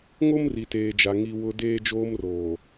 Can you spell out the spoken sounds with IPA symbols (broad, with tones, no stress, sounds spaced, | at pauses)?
ŋ o˦ m r i˨ t eː˨ d͡ʒ a˨ ŋ i˨ w ʊ˨ d eː˦ d͡ʒ oː˦ m r oː˨